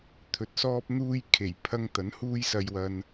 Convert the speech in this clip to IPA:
t̪ʰ ɵ˨ t̚ s ɔː˥ p̚ n̪ uː˥ j kʰ e˨˩ j pʰ ɐ˥ ŋ t̪ ɐ˨˥ n h uː˥ j s ɐ˧ j w ɐ˧ n

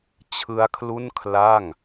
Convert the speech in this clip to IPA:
t͡ɕʰ ɯ˦˥ a̯ kʰ l u˥˩ n kʰ l a˥˩ ŋ

